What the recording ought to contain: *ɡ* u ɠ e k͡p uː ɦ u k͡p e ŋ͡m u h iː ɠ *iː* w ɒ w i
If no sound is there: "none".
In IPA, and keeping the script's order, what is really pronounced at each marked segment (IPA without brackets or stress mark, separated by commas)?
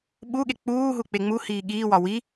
ɓ, iː